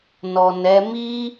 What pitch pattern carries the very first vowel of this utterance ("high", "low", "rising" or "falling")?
low